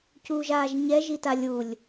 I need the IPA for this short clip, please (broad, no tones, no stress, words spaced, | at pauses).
cuːʒaːʒɲɛ ʒitalʲulʲ